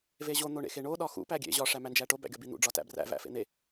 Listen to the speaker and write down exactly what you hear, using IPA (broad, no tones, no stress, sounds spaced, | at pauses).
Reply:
v e ʑ o n̪ o ɳ ḛ x e ɳ o ɗ ɒ x ṵ p æ ɡʲ ḛ ʑ ɒ ʂ æ m æ n d͡ʒ æ ʈ o b æ̰ ɡʲ ɒ b i n̪ ṵ ɖ͡ʐ ɒ t æ̰ b r æ̰ v æ̰ f ḛ n̪ e